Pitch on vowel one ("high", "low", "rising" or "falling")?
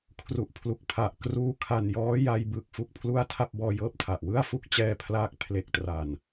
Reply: low